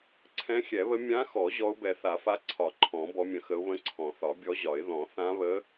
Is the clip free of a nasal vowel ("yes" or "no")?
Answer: no